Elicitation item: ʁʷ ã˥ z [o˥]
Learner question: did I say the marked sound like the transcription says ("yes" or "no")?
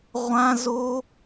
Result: yes